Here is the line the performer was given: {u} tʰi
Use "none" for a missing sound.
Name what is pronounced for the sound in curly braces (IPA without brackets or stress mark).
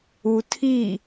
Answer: u